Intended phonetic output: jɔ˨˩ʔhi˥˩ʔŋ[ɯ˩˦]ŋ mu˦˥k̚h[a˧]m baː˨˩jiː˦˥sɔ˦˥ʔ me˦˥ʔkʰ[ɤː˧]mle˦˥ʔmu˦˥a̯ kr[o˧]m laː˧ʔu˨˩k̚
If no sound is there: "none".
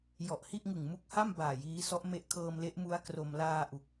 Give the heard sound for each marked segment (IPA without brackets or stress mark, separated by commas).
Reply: ɯ˨˩, a˥˩, ɤː˧, o˧